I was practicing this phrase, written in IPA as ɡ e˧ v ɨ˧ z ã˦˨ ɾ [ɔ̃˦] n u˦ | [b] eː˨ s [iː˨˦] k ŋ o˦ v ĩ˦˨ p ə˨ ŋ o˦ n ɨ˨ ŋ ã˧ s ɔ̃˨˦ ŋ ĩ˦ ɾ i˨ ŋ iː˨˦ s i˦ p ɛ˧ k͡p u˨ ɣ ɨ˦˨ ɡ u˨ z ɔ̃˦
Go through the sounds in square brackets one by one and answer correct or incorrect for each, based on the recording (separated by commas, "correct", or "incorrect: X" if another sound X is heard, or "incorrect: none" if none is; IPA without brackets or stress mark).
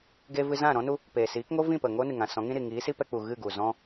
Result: correct, incorrect: p, correct